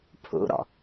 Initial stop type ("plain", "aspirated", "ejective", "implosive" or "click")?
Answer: aspirated